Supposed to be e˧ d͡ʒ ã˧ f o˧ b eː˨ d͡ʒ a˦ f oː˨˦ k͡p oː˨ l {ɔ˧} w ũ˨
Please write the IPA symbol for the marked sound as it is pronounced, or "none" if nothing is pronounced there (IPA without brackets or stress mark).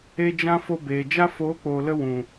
ə˧